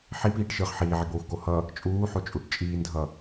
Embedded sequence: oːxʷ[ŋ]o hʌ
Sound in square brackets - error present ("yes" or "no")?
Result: yes